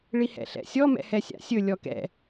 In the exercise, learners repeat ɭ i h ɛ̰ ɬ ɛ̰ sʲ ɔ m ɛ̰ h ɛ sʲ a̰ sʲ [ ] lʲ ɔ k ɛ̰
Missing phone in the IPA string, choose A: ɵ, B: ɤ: A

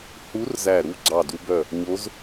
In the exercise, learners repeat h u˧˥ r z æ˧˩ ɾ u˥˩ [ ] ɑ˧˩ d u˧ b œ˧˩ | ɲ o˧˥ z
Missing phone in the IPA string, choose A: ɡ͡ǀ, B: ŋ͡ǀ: A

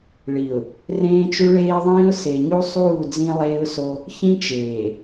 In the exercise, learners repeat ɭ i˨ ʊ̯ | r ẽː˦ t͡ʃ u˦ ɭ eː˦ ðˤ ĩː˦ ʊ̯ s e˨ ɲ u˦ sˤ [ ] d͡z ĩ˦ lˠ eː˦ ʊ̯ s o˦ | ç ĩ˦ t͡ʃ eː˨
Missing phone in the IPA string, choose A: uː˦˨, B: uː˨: A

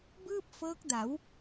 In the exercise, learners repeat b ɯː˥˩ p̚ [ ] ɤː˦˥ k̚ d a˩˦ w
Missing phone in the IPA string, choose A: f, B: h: A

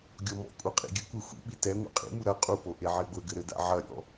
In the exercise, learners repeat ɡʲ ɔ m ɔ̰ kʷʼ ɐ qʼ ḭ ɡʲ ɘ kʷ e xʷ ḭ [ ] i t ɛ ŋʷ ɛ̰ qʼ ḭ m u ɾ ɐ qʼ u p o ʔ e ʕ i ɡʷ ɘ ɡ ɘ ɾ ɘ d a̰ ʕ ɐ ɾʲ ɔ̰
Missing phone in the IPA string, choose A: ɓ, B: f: A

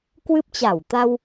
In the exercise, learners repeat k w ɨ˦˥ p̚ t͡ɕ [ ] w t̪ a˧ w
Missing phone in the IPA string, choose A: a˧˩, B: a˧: A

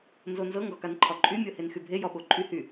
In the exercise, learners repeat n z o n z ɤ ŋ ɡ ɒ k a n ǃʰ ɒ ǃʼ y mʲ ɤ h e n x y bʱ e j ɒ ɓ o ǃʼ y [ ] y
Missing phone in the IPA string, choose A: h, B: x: A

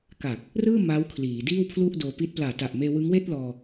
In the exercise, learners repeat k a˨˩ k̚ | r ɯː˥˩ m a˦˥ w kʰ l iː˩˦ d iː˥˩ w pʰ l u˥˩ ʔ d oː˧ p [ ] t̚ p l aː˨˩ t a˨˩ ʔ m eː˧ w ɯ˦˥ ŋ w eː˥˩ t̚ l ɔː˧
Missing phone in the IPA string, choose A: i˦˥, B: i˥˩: A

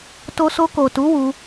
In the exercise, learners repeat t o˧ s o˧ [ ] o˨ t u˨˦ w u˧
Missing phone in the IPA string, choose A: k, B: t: A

